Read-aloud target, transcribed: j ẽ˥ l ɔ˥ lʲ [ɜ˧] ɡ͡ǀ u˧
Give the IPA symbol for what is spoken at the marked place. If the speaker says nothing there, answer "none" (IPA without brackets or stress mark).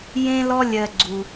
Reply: ɜ˧